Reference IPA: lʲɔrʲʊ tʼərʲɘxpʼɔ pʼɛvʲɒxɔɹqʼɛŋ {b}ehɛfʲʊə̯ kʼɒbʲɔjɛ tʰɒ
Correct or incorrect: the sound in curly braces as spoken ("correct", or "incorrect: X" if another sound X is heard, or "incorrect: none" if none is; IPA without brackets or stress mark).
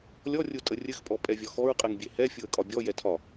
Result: incorrect: bʲ